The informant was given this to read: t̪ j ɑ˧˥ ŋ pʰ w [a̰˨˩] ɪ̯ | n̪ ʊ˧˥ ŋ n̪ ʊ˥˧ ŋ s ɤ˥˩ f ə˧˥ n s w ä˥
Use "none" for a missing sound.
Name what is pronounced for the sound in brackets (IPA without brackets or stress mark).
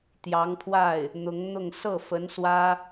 a˥˩